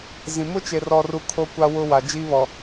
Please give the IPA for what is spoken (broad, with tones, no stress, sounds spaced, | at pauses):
z ĩ˨ m ʊ˦ t͡ʃ e˨ r ɔ˨ r u˨ kʰ o˦ kʷ a˦ w ʊ˦ w a˨ d͡ʒ iː˦ β ɔ˨